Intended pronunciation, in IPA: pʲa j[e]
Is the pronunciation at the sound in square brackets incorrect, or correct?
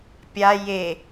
correct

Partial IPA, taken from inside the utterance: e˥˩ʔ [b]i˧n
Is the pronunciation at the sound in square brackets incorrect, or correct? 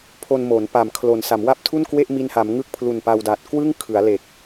incorrect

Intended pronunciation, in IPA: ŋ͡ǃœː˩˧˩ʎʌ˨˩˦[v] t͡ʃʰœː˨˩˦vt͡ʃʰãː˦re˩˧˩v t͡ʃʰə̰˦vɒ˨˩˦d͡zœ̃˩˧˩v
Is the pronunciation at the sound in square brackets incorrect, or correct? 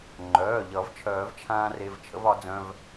correct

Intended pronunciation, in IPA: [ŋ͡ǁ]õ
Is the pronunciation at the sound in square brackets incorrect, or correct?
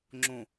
correct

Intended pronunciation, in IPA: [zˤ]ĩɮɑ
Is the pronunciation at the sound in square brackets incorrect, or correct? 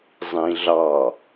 correct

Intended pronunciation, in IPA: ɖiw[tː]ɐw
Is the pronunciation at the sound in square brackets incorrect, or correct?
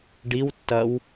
correct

